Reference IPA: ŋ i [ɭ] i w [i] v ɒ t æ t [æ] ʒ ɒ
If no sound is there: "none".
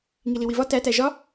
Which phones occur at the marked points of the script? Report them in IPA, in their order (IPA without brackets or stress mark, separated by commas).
l, i, æ